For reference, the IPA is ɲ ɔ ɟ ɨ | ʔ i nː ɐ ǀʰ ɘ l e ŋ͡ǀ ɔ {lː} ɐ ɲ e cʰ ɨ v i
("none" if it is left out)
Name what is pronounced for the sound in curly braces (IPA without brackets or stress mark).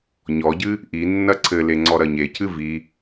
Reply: ɾ